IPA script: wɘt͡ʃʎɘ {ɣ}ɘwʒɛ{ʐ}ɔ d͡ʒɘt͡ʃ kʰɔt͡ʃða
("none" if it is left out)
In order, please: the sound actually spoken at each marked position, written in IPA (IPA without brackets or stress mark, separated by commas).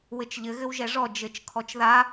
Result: ɣ, ʐ